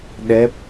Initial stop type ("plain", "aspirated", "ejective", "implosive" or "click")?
implosive